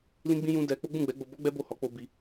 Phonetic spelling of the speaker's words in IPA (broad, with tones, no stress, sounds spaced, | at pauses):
l ĩ˦ ɡ͡b ĩ˦ j ũ˦ d ɛ˧ k͡p o˦ ɡ͡b ũ˦˨ ɡ͡b ɛ˨˦ ɡ͡b o˧ b ɔ˦ ɡ͡b ɛ˦ b o˦˨ h ɔ˨˦ k͡p o˦ b i˦